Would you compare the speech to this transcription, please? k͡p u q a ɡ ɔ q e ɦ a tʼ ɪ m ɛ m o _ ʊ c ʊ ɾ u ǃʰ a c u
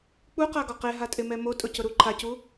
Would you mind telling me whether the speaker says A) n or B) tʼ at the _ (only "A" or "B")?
B